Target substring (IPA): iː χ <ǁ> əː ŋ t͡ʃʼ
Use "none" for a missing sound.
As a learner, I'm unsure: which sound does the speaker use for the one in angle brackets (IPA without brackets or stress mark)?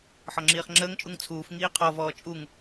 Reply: ŋ͡ǁ